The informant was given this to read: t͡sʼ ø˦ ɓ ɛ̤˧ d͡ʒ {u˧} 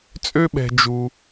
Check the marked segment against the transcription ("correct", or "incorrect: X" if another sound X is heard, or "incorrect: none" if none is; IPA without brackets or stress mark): correct